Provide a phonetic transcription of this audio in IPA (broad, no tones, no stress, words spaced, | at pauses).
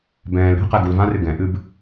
bɛ̃ːl ɾɛ̤ qɛɡulvãrɨ ɡɛ̃ʔɨb